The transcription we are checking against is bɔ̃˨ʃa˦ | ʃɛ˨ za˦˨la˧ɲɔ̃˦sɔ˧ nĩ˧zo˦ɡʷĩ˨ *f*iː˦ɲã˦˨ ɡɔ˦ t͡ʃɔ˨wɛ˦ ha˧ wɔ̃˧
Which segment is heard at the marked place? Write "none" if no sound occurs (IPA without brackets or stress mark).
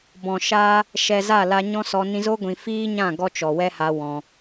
f